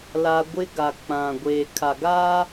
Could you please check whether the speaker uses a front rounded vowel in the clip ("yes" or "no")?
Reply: no